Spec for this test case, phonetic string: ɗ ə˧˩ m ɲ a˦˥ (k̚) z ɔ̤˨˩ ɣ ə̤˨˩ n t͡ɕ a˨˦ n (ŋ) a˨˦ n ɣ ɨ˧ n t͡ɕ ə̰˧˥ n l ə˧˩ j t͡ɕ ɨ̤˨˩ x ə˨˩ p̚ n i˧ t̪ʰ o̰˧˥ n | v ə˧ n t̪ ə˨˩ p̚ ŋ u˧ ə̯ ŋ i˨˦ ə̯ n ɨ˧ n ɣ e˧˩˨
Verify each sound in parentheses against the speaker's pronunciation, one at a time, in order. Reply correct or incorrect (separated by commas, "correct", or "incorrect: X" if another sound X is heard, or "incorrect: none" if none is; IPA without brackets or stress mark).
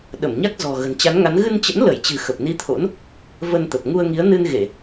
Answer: correct, correct